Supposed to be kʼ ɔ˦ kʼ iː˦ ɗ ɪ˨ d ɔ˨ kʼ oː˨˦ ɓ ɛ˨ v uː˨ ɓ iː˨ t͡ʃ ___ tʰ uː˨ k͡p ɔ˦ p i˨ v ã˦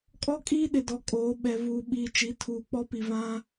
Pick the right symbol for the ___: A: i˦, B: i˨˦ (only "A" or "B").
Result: B